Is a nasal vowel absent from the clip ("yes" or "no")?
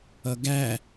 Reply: yes